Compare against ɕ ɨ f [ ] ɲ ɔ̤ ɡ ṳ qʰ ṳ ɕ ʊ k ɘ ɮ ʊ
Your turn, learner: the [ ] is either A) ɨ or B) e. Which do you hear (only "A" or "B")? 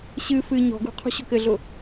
A